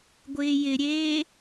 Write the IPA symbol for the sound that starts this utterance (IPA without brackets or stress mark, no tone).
ɡʷ